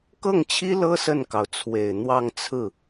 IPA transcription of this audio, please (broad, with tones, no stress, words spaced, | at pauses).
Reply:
kɤ˥˩ŋt͡ɕʰi˥lɤ˥ sə˥˩nkɑ˩ʊ̯t͡sʰwe˨˩ɪ̯n̪wɑ˥˧ŋ t͡sʰɹ̩˥˩